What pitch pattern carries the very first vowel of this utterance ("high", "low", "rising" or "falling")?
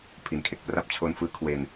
low